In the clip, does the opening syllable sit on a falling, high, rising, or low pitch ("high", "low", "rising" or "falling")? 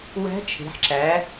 rising